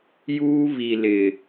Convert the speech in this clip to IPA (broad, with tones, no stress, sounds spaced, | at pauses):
j uː˦ β i˨ l ɪ˨